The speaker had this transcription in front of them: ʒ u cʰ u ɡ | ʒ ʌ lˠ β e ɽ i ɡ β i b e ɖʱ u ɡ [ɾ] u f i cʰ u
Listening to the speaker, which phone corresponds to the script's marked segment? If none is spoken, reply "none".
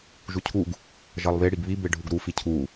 ɾ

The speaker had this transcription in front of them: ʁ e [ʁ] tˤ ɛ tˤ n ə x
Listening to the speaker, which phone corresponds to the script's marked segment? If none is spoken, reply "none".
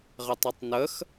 none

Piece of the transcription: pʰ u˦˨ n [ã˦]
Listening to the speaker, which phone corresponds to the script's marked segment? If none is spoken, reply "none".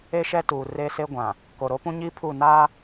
a˦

